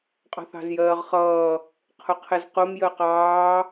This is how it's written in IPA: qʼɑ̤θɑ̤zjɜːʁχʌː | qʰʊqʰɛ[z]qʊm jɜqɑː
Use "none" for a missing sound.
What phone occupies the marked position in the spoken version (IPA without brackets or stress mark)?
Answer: z